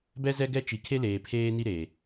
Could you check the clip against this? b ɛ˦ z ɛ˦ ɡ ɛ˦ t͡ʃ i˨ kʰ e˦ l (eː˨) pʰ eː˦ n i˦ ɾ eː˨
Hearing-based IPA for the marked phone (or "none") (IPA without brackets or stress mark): eː˨